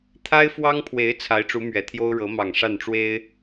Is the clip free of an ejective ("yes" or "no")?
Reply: yes